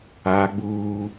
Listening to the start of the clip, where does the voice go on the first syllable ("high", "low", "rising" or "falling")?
high